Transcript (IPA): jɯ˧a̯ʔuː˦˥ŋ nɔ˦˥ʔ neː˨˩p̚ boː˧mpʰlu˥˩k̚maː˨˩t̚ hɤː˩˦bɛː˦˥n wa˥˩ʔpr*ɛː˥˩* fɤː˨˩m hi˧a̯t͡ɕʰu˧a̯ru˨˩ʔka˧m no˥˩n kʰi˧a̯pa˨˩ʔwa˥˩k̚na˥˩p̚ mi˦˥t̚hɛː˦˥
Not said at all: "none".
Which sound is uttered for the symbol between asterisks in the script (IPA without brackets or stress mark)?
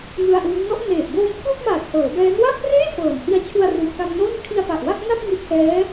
eː˥˩